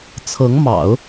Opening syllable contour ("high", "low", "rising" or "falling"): rising